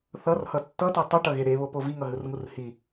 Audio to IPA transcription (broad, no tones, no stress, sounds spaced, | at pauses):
θ ʌ r h ʌ tː ʌ t e tˤ u ʈ ʌ ɣ e ɾ e β o p o v i ŋ ʌ ɦ ɯ r ŋ u r h i